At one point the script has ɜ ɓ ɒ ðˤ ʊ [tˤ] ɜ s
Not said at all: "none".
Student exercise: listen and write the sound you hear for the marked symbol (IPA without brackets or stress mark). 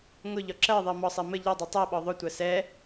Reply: tʷ